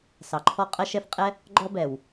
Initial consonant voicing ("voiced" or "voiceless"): voiceless